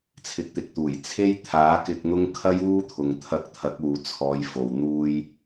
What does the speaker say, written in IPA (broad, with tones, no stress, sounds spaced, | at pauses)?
t͡sʰ ɪ˨˥ k̚ t̪ ɪ˨ k̚ t̪ uː˨˩ j t͡sʰ e˥ j t̪ʰ aː˨˥ k ɪ˧ k̚ n̪ ʊ˥ ŋ kʰ ɐ˥ j uː˥ t̪ʰ ʊ˨ ŋ t̪ʰ ɐ˧ k̚ t̪ʰ ɐ˨˥ k̚ uː˨ t͡sʰ ɔː˨˧ j f o˨ w n̪ uː˥ j